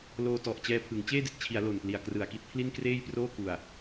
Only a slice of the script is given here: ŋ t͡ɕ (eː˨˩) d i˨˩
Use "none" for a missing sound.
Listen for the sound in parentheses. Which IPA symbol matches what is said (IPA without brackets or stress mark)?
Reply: eː˥˩